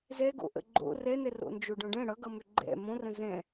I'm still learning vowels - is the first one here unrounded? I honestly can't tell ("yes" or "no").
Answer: yes